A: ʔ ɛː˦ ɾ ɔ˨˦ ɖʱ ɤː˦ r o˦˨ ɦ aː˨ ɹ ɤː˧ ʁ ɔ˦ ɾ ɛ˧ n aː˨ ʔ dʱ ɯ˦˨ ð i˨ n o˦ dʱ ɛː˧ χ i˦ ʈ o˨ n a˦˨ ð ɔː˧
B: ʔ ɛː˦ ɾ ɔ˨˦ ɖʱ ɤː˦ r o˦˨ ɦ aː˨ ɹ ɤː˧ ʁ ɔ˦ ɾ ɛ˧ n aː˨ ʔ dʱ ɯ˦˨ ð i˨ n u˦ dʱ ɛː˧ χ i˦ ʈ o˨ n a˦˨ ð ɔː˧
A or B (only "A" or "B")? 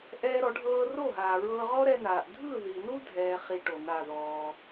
B